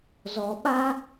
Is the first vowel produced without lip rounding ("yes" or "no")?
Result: no